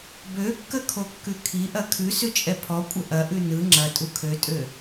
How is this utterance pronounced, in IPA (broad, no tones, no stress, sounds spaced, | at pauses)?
b ø kː ə kʰ o kː ʉ kʰ i ʔ ɐ kʰ ʉ s ʉ t͡ʃʼ ɛ pʰ ɔ kʷʼ ə ʔ ɐ ʔ ʉ n ɯ ŋ͡ǁ ɐ tʼ u kʰ ø tʼ ø